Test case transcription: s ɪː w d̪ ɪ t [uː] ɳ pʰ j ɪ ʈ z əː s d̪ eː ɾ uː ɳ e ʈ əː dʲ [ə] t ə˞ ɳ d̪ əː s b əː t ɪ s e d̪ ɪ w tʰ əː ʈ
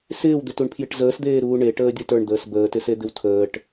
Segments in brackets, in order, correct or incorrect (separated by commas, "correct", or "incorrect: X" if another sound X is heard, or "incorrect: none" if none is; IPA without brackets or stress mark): incorrect: u, correct